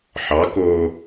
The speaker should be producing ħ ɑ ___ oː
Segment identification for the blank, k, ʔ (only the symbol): k